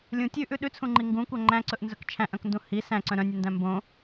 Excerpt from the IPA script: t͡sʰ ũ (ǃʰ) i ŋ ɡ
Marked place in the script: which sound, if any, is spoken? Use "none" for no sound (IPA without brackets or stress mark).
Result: ŋ͡ǃ